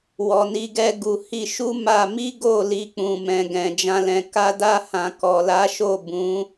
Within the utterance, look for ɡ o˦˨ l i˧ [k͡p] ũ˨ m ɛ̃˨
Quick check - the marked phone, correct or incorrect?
correct